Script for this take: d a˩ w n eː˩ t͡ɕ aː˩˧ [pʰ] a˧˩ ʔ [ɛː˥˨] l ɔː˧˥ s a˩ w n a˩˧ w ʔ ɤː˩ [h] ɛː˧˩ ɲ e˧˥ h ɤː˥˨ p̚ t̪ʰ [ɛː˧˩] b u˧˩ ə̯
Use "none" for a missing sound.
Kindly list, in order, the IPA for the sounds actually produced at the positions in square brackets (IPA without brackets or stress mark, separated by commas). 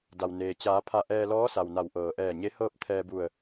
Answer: pʰ, ɛː˧, ʔ, ɛː˧